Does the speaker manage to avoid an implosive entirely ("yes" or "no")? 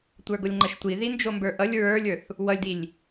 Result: yes